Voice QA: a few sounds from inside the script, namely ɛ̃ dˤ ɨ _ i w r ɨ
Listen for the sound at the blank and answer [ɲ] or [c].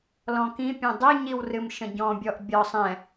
ɲ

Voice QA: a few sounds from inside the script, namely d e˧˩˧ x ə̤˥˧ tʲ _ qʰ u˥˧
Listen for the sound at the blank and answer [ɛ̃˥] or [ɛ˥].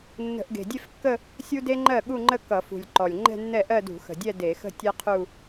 ɛ˥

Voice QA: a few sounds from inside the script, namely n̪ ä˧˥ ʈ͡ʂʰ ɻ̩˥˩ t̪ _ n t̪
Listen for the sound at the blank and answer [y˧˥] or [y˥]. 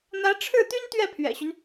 y˥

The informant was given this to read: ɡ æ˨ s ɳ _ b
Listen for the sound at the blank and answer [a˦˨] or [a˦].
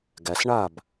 a˦˨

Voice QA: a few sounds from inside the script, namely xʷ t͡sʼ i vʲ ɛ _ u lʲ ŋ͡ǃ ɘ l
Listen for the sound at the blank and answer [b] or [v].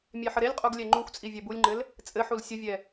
b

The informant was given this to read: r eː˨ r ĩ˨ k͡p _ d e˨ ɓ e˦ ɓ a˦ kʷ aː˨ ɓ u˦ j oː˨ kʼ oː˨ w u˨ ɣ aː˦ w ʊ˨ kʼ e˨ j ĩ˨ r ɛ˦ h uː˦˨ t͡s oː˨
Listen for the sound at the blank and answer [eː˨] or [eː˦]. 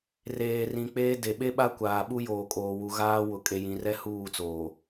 eː˦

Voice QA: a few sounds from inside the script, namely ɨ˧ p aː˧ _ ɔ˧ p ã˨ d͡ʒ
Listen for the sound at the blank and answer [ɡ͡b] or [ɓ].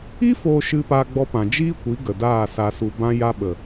ɡ͡b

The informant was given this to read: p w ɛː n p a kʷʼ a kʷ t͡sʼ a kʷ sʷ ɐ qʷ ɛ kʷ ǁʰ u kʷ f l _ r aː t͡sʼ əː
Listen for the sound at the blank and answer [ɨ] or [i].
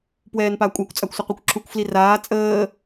i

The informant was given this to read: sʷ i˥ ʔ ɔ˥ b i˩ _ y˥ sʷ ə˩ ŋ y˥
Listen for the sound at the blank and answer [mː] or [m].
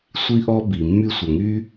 mː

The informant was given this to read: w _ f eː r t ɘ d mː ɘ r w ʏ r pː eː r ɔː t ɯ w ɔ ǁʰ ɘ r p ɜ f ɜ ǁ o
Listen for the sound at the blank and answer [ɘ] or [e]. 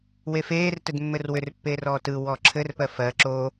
e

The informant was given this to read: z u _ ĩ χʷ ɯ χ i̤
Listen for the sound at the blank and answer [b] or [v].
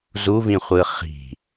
v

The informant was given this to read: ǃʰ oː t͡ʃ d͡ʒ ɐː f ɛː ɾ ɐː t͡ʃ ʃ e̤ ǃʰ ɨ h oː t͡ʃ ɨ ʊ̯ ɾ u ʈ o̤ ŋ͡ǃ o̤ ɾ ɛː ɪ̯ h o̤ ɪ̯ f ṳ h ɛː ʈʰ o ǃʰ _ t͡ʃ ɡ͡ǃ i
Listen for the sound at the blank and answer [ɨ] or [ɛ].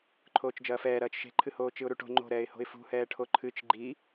ɨ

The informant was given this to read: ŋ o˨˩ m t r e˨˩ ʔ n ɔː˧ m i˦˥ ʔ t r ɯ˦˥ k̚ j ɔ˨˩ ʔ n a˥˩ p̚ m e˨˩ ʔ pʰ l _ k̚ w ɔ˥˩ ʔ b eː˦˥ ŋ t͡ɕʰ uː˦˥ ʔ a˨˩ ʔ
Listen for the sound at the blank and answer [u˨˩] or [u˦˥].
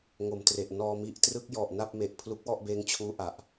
u˦˥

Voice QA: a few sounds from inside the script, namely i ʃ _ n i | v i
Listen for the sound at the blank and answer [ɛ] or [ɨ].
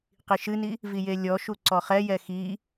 ɨ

